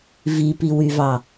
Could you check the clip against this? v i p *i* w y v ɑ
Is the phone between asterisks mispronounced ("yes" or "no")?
no